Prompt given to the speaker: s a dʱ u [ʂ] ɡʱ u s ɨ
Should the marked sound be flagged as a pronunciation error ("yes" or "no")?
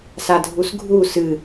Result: yes